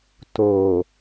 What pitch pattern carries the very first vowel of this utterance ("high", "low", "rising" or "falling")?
low